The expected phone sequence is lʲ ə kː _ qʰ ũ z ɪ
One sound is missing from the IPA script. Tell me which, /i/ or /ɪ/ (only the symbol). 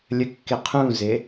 ɪ